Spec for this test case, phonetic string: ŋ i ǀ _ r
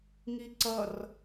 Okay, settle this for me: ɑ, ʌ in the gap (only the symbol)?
ʌ